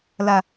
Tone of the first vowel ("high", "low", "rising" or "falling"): low